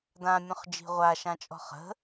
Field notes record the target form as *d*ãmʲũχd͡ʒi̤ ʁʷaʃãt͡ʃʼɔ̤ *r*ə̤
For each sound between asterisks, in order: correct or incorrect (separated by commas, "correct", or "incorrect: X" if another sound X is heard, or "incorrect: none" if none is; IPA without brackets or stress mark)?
correct, incorrect: χ